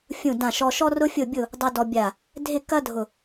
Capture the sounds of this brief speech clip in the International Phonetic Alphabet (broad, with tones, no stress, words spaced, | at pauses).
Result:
fʲũ˦˨dã˦˨ʃɔ˦ ʃɔ˦rʊ˦fʲʊ˦˨bʲʊ˦˨ | dˤu˦dɔ˦bʲa˦˨ | dʱɪ˦˨kɐ˦ dʱʊ˦˨